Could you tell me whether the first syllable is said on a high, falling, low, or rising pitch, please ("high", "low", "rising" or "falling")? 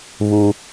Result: high